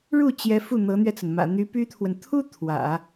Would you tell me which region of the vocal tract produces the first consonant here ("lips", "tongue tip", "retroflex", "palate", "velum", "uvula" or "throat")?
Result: retroflex